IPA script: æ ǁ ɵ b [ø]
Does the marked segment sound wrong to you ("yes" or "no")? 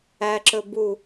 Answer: yes